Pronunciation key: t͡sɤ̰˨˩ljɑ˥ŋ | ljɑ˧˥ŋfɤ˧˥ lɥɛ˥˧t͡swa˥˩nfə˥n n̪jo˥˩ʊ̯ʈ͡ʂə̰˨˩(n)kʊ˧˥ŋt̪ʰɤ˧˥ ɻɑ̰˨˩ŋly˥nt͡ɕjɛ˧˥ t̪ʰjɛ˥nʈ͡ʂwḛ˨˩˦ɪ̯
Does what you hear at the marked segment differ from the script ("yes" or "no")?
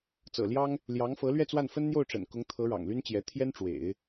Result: no